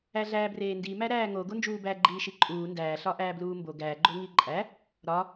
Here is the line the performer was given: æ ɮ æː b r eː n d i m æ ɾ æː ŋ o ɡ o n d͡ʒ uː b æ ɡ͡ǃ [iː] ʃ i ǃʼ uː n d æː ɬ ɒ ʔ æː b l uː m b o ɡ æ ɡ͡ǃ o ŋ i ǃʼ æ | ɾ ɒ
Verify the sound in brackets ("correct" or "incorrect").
correct